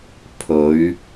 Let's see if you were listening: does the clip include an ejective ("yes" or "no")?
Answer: no